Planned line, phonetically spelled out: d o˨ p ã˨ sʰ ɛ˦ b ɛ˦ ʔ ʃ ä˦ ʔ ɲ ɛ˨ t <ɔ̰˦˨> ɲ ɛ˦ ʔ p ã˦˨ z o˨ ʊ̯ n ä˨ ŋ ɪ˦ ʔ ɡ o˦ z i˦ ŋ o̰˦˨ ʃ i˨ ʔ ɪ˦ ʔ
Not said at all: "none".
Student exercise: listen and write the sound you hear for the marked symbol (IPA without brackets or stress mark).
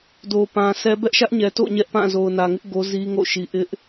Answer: o̰˦˨